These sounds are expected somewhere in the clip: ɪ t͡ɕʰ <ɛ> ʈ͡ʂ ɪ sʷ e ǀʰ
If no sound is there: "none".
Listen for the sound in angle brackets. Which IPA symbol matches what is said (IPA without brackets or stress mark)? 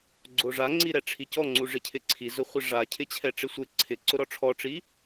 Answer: ɛ